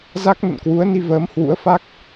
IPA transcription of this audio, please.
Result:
z a˦˥ k̚ n ə̰˧˨ n k w u˨˦ ə̯ n i˧ v əː˨˦ m h w ṵ˧˥ ə̯ f a˦˥ k̚

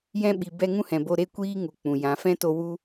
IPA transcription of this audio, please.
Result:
j ɛ̃˧ ɓ i˨ b ɛ˧ ŋ ũ˦ h ɛ̃˨ b o˧ ɾ e˦ kʷ iː˦ ŋ u˨ k͡p ũ˨ j ã˨˦ f ɛ̃˦ t o˧ w u˦

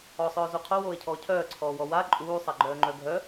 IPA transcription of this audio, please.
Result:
ɔ sˤ œː z u qʰ o w oː e̯ cʰ ɔː cʰ œː ǀʰ ɔː w ɔ w a ǃʼ uː sˤ a ɡ͡ǃ œː ŋ͡ǃ œ ɡʱ œ

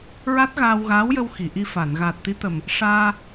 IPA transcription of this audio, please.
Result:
ɹ a˦˥ t̚ ɣ aː˧ w ɣ aː˧˥ w j ə˧ w x i˨˩˨ ʔ i˧ f a˨˩˨ n ɣ aː˨˩ t̚ t̪ i˧˥ t̪ ə˨˩ m | ʂ aː˧

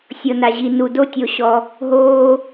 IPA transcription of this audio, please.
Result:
sʲ ɤ˨ n a˨ ʑ i˨ n u˨ d o˦ tʲ o˨ ɕ ɔ˨ | ɦ oː˦

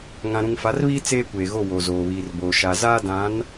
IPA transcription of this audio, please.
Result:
ŋ ã˨ ɾ ũ˨ ŋ f a˨˦ r β iː˦ t͡s eː˦ kʷ eː˨ ɣ o˦˨ w o˨ z oː˨ β iː˨ r b oː˨ ʃ a˨ z aː˦ d ã˨˦ n

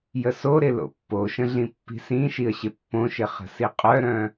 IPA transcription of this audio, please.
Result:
j ə s o ɾ ɪ l o̰ pː o ʃ ə̃ ɮ ĩ pː i̤ s ĩ ʃ i ə̯ ɕ ɪ pː õ ʃ ɪ χ ə̤ s i qʼ œ ɾ œ̃

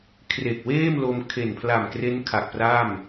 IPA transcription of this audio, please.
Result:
kʰ r e˨˩ k̚ w eː˥˩ m l o˧ m kʰ e˨˩ n pʰ l a˨˩ m k r e˦˥ n kʰ a˨˩ k̚ p r a˥˩ m

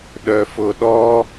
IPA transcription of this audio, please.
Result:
ɗ œ f ʊ ɗ ɔ

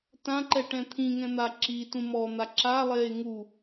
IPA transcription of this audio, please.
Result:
t ã ǃ ɛ ʈ ɛ̃ t̪ʰ ĩ ŋ ɛ̃ n̪ a ǁ i t ũ m ɔ n̪ a ǁ a lˠ eː ŋ u

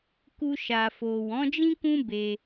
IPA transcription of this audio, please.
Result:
k u˧ ʃ a˨ f o˨ w ɔ̃˨˦ d͡ʒ ĩ˦ k ũ˦ b e˧

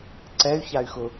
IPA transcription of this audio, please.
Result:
ǀ ɛ y̯ ç a y̯ x ʊ

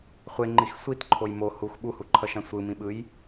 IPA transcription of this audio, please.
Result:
χʷ e ŋ͡ǃ i x sʷ i t ǃʰ o j m o h u x ɓ u h u ǃʰ ʌ ʃ ã sʷ ɯ m ĩ ɓ ɯ j

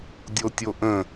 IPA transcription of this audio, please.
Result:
dʲ o tʲ o ʔ ə̃

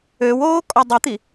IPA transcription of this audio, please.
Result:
ø w oː kʼ ɔ dˤ u t̪ i

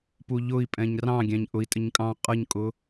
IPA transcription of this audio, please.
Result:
p u ʎ ʊ i̯ pʼ ɛ̃ ɲ r ɑ̃ ɡʲ æ̃ ɲ ʔ ʊ i̯ tʼ ɪ ɲ kʼ ɑ̃ qʼ ʌ ɲ kʼ ʊ

